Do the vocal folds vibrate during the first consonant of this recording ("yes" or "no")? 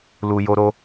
yes